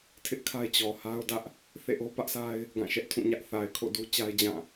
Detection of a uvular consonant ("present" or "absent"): absent